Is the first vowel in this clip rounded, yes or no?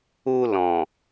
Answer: yes